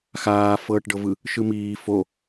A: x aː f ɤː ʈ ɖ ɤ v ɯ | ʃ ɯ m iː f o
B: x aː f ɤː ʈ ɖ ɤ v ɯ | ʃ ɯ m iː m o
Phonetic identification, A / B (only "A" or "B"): A